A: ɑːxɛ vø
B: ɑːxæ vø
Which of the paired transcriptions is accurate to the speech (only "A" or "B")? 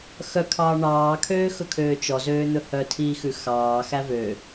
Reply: B